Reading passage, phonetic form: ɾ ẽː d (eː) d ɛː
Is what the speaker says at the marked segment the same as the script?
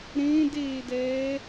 yes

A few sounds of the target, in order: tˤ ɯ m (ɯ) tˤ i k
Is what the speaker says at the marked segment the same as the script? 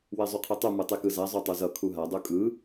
yes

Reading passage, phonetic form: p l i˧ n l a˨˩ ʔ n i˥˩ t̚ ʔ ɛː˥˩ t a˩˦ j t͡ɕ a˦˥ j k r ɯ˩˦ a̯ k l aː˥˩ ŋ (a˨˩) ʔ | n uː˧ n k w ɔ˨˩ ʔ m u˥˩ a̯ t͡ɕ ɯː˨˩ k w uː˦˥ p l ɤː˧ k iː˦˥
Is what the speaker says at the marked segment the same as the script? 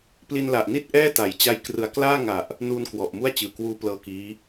yes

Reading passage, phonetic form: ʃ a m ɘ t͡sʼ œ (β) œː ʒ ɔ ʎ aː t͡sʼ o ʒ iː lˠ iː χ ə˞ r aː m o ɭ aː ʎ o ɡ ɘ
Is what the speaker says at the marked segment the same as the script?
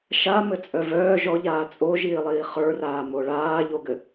no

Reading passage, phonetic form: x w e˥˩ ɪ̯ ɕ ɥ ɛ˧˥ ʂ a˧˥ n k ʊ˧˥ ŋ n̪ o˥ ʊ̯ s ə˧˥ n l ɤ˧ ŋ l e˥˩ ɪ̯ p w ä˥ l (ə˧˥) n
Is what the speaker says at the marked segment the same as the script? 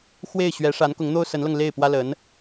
yes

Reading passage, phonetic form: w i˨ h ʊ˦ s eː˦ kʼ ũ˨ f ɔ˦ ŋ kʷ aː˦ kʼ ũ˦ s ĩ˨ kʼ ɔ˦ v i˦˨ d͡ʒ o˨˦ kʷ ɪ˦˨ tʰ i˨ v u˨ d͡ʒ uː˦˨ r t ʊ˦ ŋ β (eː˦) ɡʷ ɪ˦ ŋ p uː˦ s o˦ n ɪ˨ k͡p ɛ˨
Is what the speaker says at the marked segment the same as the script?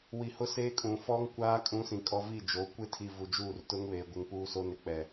no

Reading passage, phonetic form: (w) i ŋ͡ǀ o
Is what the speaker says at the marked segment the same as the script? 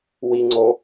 yes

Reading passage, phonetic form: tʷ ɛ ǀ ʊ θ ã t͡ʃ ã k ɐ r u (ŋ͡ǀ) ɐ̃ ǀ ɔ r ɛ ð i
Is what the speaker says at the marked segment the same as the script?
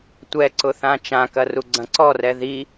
no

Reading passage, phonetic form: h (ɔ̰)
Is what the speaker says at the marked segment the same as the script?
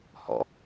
yes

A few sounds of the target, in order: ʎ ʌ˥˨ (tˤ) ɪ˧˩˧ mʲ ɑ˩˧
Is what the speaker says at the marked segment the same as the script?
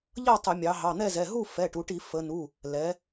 yes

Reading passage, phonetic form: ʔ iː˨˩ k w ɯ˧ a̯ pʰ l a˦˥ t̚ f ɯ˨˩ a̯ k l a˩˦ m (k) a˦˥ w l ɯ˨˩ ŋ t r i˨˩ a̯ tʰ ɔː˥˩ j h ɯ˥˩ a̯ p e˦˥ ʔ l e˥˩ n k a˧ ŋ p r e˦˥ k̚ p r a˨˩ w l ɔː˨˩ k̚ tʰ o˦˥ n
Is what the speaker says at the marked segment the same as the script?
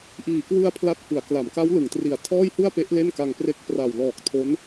yes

